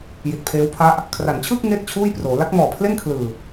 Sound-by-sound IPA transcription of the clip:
j i˨˩ t̚ pʰ eː˦˥ w pʰ a˦˥ ʔ | kʰ r a˩˦ n t͡ɕʰ ɯː˥˩ k̚ ŋ eː˥˩ t̚ t͡ɕʰ uː˥˩ j p r oː˩˦ l a˦˥ k̚ m ɔː˨˩ pʰ l e˥˩ n kʰ l ɯː˨˩

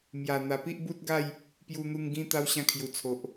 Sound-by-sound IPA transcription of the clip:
m j a˨˩ n̪ a˨˩ p i˦ ʔ b u˦ t̚ ɡ a˥˧ j | p j u˧ n̪ u˧ ŋ ɡ ĩ˦ t̪ a˦ w ɕ ã˧ kʰ j u˨˩ t͡sʰ o˨ ʔ

